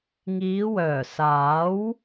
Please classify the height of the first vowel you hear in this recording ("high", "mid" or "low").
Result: high